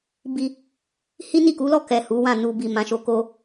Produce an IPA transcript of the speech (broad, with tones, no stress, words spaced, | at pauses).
bi˧ | hi˦ni˦˨ku˨˦lɔ˦˨ kɛ˨ hu˨˦wã˦˨ nu˨bi˨ mã˨˦ʃo˧ ko˧